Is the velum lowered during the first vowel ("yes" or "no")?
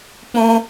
yes